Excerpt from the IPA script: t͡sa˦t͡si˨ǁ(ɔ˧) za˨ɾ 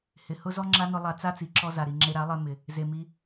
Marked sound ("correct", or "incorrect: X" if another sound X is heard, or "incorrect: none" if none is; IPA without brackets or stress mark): correct